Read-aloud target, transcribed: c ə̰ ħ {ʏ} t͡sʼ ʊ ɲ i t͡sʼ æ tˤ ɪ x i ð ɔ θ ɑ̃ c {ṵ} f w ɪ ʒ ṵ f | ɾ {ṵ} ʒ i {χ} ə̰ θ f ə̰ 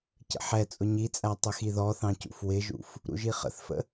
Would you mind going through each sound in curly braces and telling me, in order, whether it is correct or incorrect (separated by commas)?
incorrect, correct, correct, correct